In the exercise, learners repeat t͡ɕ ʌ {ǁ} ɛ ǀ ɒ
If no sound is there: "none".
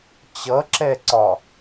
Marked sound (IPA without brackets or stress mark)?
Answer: ǁ